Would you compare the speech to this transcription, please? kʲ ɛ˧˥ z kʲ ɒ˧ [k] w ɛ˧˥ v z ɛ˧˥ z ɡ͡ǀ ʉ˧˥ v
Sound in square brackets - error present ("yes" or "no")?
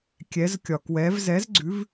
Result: no